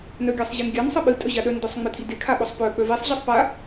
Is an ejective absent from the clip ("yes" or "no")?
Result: no